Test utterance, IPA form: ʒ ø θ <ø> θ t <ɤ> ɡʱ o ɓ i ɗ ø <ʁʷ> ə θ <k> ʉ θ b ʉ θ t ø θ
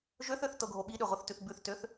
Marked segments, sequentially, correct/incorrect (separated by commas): correct, correct, correct, incorrect